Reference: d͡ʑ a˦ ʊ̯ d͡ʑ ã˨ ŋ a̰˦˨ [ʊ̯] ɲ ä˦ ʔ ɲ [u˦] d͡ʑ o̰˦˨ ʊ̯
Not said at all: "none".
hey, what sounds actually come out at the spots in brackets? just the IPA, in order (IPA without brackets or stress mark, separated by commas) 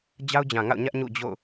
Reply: ʊ̯, ṵ˦˨